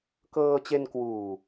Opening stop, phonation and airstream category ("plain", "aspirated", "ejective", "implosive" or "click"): plain